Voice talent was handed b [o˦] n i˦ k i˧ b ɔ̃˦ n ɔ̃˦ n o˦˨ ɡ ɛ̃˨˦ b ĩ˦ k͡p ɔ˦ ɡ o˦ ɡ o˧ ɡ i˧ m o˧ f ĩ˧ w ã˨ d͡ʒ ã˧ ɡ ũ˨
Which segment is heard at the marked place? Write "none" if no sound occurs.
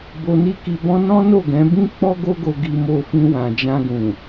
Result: o˧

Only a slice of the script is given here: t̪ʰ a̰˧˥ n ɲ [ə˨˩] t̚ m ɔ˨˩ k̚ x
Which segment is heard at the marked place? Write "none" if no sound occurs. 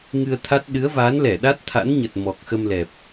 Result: ə˨˩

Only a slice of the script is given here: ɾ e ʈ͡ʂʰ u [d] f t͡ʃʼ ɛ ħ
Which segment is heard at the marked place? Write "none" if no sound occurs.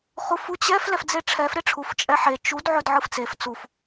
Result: none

